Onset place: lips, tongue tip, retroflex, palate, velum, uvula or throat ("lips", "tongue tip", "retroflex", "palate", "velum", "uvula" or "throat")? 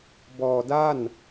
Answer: lips